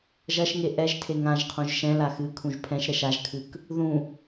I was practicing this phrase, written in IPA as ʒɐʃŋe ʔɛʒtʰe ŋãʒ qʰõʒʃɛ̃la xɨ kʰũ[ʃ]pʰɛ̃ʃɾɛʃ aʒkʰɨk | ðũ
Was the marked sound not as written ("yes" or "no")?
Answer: yes